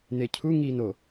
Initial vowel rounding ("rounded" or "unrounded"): unrounded